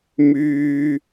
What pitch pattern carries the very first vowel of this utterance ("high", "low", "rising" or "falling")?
low